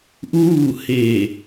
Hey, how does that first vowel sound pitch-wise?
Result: falling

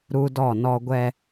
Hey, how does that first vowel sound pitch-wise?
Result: high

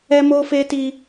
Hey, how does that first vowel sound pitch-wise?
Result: high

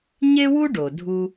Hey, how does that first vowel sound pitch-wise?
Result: high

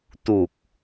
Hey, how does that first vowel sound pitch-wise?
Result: low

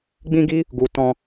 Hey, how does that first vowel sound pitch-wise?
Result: high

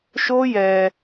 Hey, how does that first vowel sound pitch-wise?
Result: high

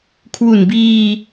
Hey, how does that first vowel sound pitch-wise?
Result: low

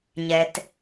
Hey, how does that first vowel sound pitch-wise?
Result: low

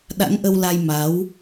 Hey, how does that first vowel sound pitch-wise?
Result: rising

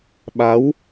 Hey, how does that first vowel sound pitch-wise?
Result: rising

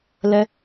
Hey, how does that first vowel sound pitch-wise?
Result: high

